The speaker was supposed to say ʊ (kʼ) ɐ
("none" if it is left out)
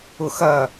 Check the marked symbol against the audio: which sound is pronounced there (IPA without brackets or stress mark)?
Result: x